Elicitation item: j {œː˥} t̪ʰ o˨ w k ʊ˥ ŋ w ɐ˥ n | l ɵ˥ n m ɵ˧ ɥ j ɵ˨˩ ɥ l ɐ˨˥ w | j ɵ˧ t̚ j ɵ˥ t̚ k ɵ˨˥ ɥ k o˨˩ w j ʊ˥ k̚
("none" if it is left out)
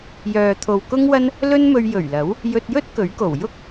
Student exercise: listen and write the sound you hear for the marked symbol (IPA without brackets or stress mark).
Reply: œː˨